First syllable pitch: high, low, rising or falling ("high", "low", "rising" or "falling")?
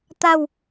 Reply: falling